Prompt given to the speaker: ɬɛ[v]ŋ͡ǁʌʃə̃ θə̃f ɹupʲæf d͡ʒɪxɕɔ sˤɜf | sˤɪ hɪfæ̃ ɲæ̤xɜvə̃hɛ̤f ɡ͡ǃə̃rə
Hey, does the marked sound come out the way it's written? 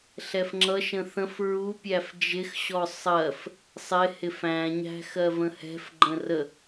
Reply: no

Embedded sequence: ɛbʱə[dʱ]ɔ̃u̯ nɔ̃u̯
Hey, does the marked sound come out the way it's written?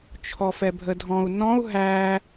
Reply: yes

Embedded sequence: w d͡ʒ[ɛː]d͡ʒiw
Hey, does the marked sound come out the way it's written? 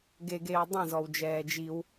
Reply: yes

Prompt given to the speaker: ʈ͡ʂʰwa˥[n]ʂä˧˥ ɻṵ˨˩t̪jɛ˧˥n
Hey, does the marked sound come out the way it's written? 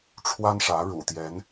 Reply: yes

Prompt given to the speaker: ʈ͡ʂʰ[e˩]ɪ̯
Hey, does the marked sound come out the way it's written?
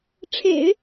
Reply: no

